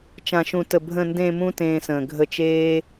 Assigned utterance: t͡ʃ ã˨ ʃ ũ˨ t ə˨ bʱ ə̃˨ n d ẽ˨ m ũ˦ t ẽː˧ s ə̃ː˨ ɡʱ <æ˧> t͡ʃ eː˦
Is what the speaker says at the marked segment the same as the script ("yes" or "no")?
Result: no